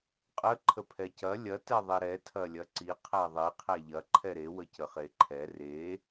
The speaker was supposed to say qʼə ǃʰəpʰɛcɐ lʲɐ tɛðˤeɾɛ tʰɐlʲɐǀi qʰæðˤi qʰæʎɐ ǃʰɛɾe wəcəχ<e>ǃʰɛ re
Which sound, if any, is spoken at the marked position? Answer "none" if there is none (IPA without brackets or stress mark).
e